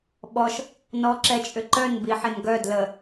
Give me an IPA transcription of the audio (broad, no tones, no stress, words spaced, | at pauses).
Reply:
ɓɔʃ | nɔǁɛt͡ʃʼʏǃœn biħɪnɡœ dlə